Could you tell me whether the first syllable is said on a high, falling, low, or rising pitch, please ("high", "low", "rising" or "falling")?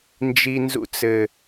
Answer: high